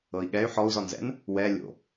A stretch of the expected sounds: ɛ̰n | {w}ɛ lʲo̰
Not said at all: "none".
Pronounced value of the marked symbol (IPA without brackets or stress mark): w